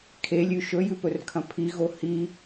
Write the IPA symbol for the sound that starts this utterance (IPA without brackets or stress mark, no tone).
kʰ